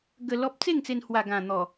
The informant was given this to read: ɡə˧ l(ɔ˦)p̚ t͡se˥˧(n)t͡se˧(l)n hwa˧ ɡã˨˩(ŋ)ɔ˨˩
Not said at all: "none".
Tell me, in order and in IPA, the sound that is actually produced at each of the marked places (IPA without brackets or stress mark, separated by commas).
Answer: ɔ˦, ŋ, none, n̪